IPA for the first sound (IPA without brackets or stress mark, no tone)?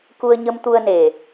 k